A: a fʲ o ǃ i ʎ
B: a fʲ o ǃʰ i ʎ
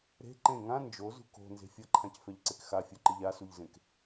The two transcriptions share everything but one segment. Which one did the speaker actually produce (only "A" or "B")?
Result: A